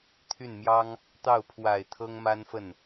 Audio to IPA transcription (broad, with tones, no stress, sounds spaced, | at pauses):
t̪ʰ y˥˩ n m j ɑ˥ ŋ | t̪ ɑ˥˩ ʊ̯ pʰ w a˨˩ ɪ̯ t̪ʰ ɤ˥ ŋ m a˥ n f ə˥˩ n